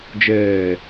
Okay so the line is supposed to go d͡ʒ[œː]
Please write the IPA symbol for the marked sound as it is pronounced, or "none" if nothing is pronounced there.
ɛː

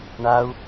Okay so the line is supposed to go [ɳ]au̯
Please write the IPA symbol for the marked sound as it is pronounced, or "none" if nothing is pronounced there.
ɳ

